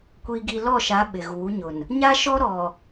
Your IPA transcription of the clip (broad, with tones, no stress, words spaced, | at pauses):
kʷiː˨ɡi˨lɔ˦˨ʃa˨˦ ɓɪ˨ɣuː˨˦ ɲʊ˨n | ɲa˦ʃɔ˦ ɾɔ˨